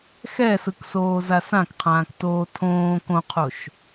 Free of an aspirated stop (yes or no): no